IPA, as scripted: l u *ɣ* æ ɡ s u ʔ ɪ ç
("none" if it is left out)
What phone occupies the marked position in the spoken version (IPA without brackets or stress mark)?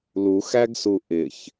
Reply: x